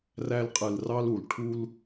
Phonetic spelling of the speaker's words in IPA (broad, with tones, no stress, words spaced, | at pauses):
ræ˧lqʼɯ˨lrɑ˧l u˨l ʈʰu˧l